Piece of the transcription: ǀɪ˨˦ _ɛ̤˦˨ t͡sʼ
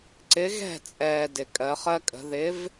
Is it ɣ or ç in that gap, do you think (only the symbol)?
ɣ